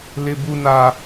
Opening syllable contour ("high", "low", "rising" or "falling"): high